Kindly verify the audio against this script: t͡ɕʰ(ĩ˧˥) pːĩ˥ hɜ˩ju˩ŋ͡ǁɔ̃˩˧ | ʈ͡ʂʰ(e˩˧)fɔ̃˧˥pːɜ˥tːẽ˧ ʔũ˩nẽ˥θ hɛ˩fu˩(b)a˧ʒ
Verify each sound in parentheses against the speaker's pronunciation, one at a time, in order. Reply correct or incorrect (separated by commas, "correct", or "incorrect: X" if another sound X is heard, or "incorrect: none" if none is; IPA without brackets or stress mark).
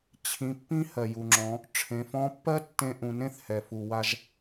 correct, incorrect: ẽ˩˧, incorrect: w